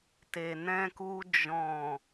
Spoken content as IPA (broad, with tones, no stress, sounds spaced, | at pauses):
t e˨ n ɛ̃˧ k u˧ d͡ʒ ɔ̃˨